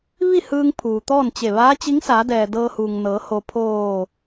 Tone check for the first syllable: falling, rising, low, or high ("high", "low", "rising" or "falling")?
falling